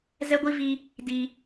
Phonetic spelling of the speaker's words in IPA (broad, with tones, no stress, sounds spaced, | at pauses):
z ɛ˦ ɡʷ i˦ v i˦ | d i˦